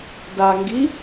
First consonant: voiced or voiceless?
voiced